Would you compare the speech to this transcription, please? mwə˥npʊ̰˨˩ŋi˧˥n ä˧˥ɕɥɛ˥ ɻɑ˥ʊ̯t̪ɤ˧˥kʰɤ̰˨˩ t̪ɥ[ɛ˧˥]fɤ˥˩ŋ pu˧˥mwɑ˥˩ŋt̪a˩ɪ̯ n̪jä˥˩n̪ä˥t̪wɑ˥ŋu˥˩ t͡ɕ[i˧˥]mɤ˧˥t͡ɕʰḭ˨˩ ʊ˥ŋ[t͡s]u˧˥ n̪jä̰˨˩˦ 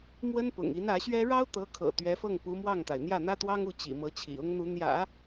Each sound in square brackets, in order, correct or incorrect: correct, incorrect: ḭ˨˩, incorrect: n̪

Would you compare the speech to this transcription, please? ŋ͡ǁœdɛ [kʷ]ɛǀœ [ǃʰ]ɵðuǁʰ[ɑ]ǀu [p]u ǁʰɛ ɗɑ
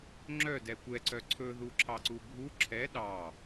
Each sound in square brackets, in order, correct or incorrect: correct, incorrect: ǀʰ, correct, incorrect: bʱ

